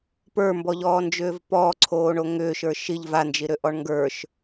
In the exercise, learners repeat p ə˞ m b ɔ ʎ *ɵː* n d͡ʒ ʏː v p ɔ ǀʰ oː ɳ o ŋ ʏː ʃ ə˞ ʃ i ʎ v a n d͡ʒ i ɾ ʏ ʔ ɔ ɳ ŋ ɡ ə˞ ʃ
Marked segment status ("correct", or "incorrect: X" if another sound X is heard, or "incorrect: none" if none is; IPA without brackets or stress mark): incorrect: ɔː